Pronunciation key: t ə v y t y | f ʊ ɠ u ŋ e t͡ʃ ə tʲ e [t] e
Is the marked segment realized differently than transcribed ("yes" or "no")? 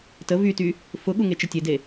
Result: yes